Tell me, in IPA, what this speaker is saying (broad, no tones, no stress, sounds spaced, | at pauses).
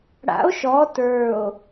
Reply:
ɽ a̰ o̯ ʃ ɔ t ə˞ o̯